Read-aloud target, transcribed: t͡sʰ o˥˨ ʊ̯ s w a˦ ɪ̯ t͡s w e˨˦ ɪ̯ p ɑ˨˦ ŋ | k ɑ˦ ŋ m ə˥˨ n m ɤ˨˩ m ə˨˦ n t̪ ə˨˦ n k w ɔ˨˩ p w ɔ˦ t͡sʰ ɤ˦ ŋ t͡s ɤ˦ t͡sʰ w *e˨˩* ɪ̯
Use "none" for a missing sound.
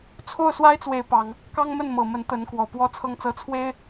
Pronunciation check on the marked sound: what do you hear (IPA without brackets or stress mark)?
e˦